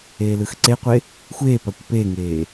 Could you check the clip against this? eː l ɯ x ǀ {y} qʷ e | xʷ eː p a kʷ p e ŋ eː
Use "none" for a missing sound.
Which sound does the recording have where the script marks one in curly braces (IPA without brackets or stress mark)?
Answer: e